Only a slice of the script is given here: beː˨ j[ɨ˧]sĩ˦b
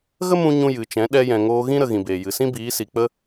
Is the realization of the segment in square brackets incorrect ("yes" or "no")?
yes